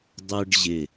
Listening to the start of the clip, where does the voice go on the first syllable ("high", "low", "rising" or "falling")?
high